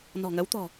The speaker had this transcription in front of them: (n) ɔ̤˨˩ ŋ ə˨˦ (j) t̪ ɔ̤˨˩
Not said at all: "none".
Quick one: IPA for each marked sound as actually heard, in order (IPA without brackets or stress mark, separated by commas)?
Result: n, w